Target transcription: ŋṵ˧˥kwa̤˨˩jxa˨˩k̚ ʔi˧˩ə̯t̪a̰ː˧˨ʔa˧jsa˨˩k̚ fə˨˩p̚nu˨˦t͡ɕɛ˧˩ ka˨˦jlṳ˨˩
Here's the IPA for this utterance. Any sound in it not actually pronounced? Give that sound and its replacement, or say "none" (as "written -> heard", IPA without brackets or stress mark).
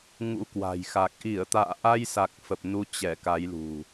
none